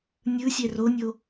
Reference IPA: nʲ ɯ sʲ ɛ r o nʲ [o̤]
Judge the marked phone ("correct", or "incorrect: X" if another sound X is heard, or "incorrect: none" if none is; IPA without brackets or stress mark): incorrect: o